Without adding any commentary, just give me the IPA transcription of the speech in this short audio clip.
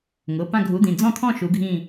ŋ ʊ˩˧˩ p ã˦˨ ɡʱ u˨˦ d̪ ĩ˩˧˩ d͡z ɔ̃˦˨ t̪ʰ ɔ̃˦˨ ʃ u˨˦ ɡʱ ĩ˦˨

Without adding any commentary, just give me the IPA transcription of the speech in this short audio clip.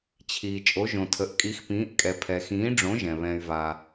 t͡ɕʰ iː˩ t͡ʃʼ o˩˥ ʒ õ˩ tʰ ə˩˥ ʔ kʼ i˩˥ x p ĩː˩˥ ʔ kʼ ɛ˩ pʰ ɛ˩ x ĩː˩˥ ɖ͡ʐ õ˩˥ ʒ ɛ̃˩ β ɛ̃˩ y̯ v a˩

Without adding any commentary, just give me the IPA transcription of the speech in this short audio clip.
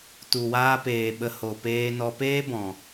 t u˨ w aː˧ p eː˨ ɓ ə˧ h o˨ p eː˧ n ɔ˧ p eː˦ b ɔ̃˨

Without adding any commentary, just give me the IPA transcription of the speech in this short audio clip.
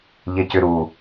ʎ ɪ c ʏ ɾ u

